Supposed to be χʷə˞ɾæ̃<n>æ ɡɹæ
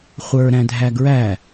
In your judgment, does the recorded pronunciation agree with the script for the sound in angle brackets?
no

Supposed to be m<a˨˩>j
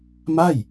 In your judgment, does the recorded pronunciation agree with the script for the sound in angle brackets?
no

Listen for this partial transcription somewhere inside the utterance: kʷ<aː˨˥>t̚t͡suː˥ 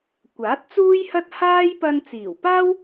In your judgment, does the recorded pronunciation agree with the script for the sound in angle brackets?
yes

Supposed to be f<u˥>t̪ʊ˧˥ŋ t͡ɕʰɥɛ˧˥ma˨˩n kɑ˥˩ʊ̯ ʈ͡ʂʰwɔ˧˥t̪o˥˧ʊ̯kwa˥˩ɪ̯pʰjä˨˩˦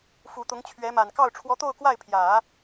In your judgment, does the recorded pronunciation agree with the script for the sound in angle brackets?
no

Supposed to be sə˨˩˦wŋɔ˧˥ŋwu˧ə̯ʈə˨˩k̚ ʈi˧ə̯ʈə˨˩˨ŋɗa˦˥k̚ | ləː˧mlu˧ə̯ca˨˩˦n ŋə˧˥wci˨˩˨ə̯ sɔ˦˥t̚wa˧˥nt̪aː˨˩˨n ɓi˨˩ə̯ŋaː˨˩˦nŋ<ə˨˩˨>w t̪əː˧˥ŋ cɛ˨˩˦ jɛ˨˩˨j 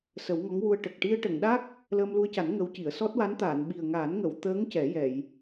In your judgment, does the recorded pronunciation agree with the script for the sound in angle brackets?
yes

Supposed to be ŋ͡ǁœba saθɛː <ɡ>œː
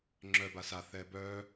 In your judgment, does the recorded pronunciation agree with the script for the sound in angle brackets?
no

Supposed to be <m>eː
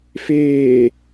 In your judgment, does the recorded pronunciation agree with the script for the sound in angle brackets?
no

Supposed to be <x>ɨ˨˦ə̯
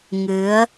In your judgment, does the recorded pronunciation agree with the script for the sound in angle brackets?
no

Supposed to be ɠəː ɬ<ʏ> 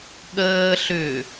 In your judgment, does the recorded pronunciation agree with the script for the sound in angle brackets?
yes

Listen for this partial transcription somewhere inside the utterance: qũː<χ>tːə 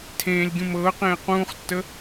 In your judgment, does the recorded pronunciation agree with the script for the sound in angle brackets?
yes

